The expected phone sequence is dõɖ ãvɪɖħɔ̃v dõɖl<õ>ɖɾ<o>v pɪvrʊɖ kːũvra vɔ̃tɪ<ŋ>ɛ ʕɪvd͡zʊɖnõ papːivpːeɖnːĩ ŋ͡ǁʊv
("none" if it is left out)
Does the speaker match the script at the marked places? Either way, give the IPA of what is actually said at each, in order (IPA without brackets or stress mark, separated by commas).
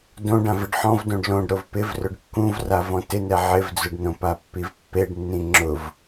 õ, o, n